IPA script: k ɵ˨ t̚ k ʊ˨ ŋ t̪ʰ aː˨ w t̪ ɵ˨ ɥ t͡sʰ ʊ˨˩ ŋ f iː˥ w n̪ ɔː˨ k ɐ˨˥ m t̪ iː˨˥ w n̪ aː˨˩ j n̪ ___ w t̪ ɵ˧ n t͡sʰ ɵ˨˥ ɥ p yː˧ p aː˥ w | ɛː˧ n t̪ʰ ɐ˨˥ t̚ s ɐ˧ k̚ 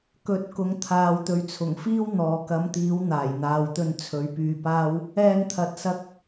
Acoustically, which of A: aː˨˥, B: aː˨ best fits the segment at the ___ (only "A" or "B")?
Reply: B